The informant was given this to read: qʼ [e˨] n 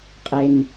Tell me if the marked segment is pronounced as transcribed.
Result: yes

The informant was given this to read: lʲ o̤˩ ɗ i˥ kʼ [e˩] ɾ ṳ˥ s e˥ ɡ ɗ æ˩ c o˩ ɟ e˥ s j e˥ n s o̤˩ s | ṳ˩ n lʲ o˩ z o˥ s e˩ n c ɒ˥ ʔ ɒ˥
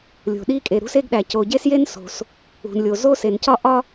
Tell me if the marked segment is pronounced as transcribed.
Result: yes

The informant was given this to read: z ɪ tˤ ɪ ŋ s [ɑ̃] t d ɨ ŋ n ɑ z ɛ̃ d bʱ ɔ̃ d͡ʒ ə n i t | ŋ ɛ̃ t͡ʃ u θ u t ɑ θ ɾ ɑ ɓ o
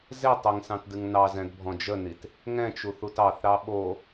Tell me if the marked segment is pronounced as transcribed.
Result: yes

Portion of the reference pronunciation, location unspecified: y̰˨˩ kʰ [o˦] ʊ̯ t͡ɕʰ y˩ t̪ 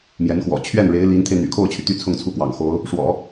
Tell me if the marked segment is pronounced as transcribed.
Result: no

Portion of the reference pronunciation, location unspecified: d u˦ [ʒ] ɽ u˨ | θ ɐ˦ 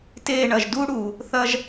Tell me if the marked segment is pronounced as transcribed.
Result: no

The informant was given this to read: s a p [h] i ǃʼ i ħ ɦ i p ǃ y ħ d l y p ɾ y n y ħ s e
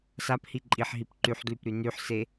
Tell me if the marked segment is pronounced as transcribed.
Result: yes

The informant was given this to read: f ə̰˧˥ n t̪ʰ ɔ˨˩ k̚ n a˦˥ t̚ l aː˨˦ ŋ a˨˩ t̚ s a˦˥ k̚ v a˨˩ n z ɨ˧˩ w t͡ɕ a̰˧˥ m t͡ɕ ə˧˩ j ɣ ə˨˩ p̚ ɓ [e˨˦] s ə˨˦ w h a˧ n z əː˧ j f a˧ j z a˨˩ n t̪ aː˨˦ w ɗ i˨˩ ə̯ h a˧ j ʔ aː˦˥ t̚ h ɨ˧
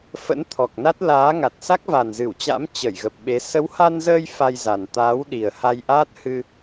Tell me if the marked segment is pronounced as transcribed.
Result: yes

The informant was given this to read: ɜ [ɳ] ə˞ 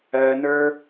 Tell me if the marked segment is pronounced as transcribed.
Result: no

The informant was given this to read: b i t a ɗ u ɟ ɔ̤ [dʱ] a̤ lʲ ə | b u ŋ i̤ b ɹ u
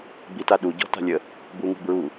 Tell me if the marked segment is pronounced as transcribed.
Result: no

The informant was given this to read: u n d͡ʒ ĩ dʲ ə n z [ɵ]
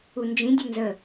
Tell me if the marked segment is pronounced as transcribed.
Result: no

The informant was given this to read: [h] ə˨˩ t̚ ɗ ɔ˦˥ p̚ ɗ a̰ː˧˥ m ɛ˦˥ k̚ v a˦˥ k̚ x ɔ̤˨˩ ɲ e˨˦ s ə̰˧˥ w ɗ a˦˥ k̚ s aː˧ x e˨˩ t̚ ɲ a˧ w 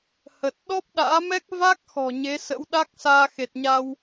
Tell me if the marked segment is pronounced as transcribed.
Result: yes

